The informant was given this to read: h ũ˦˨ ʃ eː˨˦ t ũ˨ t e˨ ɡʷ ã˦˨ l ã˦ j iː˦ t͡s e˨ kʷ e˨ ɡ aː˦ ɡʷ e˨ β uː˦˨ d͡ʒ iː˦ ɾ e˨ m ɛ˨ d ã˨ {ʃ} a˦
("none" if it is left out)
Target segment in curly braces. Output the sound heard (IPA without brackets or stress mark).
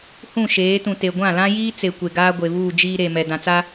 t͡s